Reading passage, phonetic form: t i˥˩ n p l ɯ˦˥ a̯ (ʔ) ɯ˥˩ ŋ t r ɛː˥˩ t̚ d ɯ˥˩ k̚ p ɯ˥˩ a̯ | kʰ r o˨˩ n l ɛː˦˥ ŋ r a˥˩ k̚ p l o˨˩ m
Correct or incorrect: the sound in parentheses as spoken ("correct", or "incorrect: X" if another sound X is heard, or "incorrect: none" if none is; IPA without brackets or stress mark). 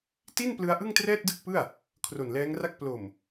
correct